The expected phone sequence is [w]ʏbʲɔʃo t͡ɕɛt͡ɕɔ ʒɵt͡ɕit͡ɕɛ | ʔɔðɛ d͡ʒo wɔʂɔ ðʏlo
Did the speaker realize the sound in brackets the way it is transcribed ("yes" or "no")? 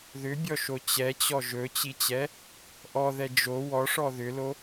no